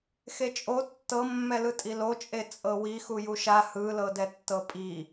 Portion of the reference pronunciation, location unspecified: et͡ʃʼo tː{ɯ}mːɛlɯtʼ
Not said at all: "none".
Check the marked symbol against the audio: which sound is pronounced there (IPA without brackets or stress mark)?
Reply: ɤ